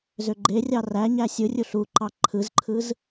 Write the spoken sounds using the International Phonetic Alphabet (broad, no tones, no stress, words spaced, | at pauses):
zøɡ͡ǃerʲɑ ræɲæ sʲɯrʲu ɬuǃɑ ǃʰɯzǃʰɯz